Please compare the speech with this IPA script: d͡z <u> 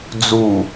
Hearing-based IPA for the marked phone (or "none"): u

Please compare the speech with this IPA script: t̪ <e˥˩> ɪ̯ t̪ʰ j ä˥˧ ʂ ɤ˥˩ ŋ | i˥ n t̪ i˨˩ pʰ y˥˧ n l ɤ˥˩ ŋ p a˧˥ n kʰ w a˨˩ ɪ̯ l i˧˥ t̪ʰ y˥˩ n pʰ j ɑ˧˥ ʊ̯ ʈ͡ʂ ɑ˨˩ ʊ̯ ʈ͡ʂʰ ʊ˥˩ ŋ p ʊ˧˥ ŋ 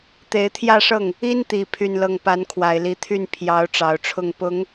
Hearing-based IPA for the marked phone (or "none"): e˧˥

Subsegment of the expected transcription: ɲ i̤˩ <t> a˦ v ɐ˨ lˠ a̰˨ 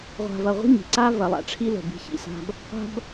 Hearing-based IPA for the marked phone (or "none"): ǀ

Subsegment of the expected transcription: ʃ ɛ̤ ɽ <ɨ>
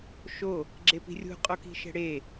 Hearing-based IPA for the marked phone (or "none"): e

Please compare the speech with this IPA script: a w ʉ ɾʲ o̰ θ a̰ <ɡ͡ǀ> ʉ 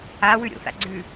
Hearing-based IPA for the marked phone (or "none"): ɡ͡ǀ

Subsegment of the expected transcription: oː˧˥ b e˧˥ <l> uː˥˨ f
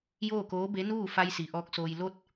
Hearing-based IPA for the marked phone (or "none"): n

